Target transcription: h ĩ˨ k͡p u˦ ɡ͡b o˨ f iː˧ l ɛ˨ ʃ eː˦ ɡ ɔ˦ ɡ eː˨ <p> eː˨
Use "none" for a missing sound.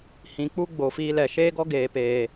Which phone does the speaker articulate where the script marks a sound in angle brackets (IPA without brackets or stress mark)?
p